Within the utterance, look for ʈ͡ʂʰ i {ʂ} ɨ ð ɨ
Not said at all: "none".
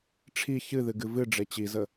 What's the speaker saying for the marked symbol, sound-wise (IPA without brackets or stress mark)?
ç